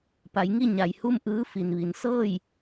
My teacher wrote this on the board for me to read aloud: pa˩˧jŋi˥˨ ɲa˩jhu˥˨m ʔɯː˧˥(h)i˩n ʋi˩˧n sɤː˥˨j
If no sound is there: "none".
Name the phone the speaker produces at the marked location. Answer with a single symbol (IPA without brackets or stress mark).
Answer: f